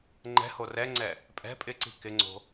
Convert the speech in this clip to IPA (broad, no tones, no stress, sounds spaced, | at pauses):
ŋ͡ǃ ɛ̤ h o r ɛ ŋ͡ǀ ɛ | pʼ ɛ̤ pʼ ɪ ǀ i̤ k ɪ ŋ͡ǀ o̤